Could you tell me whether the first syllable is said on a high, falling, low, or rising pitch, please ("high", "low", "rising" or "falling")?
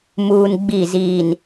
low